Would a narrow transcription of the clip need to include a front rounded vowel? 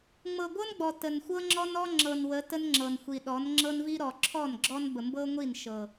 no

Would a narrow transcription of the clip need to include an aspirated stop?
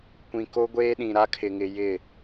yes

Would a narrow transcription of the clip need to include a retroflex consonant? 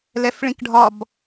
yes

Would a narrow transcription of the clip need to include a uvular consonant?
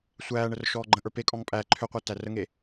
yes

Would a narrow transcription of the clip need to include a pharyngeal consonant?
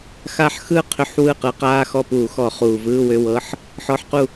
yes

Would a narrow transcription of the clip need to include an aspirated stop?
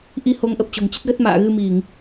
no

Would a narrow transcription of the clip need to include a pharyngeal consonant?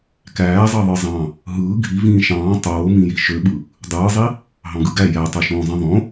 no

